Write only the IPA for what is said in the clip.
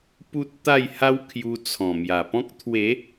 p u˦ t̚ t̪ a˥˧ j h a˦ w kʰ j u˧ t͡sʰ ɔ̃˨˩ m j a˨˩ p ɔ̃˦ k̚ t̪ʰ w e˨˦

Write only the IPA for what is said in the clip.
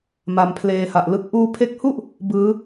m a˧ m pʰ l eː˧ h a˨˩ ʔ l ɯ˥˩ k̚ ʔ uː˧ pʰ e˦˥ k̚ h u˥˩ ʔ | b ɯː˦˥

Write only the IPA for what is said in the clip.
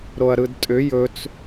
ɾ o ɐ̯ ɾ ɯ d tʼ ʏ j ɵ t͡s

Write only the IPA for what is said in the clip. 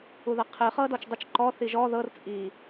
u ð ɐ qʰ ɨ χ ɤ d ɔ t͡ʃ dˤ ɨ t͡ʃ ǃ ɔ θ i ʒ ɔ ð ɤ r t͡sʼ i

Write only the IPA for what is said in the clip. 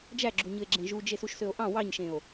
d͡ʒ æ ɡ͡ǁ u ɲ ɯ e̯ ɡ͡ǁ ẽ ʒ u d͡ʒ e s u ʃ s ø o̯ ʔ ɑ̃ w ɑ ɲ ʃ ẽ o̯

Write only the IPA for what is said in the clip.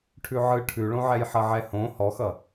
ʈʰ ʉ ʕ ɯ ʈʰ ʉ ɭ õ ʕ ɛ j ħ ʌ ʕ ɛ h õ h ɔ x ʌ

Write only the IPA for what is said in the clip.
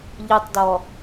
ʎ ɨ tˤ d ɔ

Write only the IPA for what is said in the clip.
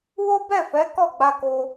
w o˦ b ɛ˦˨ f ɛ˨˦ k ɔ˦˨ ɡ͡b a˧ k o˧

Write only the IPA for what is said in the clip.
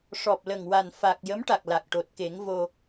ʂ ɔ˨˩ p̚ l ə˨˩ ŋ w a˨˩ n f a˨˩ k̚ j ə˧˥ m ʈ a˨˩ k̚ l a˨˩ k̚ ʈ o˨˩ t̚ k e˨˩˦ ŋ v o˧

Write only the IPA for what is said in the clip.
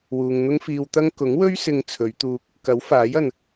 w uː˨ ŋ n̪ ʊ˥ ŋ f iː˧ w t̪ ɐ˥ ŋ k ʊ˨˥ ŋ w ɵ˥ ɥ s ɪ˧ ŋ t͡sʰ ɵ˨˧ ɥ t̪ uː˧ k̚ | k ɐ˨˥ w f aː˨˥ j ɐ˨ n

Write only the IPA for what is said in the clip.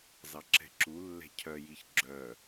z ɑ ǁ ɛ̤ ǁ u lː ɛ̤ cʰ œ j i ç ɡ͡ǁ œ

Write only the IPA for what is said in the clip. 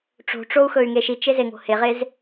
ʈ͡ʂ o̤ ʈ͡ʂ o u̯ x ɵ y̯ ŋ e ʃ i t͡ʃ e z e ŋ o̤ h e ʁ e z

